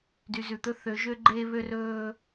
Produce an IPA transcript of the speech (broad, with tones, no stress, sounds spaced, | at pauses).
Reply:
d y˨ z ʉ˨ t̪ ɵ˦ θ ø˨˦ ʒ ø˦ ɡ͡ǃ eː˦ β ø˦ r ɵː˦